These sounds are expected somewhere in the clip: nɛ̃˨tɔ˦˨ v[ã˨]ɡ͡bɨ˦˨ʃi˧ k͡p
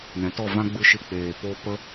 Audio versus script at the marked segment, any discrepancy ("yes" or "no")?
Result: yes